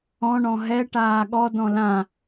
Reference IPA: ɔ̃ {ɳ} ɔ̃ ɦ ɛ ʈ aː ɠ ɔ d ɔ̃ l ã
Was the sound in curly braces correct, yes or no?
yes